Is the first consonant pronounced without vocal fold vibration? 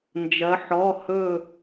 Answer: no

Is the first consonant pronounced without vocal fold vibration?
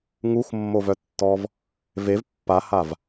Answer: no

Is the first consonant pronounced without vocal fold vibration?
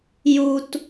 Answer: no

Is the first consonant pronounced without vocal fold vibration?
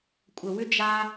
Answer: yes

